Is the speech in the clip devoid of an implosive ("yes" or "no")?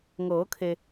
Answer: yes